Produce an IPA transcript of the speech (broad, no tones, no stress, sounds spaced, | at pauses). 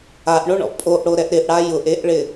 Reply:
a ʔ ɳ o ɳ ɔ̰ pʼ o ʔ ɽ o ɾ ɛ ʔ ɾ ɪ ʔ ɽ a j ʊ ʔ e ʔ ɭ ɪ